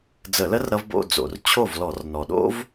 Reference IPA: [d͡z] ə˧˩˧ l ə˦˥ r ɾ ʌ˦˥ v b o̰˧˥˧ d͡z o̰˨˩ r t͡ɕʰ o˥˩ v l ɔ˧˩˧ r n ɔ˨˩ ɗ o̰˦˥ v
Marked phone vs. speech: correct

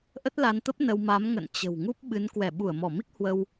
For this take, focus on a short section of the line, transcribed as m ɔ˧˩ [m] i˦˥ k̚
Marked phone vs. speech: correct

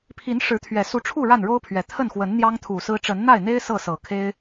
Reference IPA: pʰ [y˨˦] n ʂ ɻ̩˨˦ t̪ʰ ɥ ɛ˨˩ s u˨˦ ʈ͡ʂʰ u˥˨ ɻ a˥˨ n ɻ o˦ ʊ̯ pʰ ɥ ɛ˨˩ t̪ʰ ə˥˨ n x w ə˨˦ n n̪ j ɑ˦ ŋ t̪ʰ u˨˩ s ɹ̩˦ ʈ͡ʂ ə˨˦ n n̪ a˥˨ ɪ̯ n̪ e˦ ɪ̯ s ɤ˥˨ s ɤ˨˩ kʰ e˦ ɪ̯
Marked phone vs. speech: incorrect: i˨˦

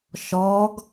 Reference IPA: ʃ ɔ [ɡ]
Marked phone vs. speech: correct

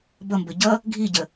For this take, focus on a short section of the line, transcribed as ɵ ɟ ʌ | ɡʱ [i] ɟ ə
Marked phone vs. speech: correct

